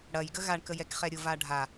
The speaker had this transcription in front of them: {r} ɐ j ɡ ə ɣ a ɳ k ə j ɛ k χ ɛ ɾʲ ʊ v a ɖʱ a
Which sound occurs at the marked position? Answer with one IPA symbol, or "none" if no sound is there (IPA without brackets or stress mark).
ɽ